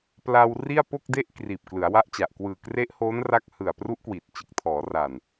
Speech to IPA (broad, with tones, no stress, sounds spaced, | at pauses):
p l a˧ w r i˥˩ a̯ p o˥˩ k̚ d e˥˩ ʔ k r iː˨˩ p̚ k l ɯ˩˦ a̯ w a˦˥ ʔ t͡ɕ a˨˩ ʔ k w ɯː˨˩ k r e˦˥ ʔ h oː˦˥ n r a˦˥ k̚ h ɯ˨˩ a̯ p r u˦˥ ʔ k w i˨˩ t̚ t͡ɕ ɯ˨˩ k̚ tʰ ɔː˩˦ r a˨˩ n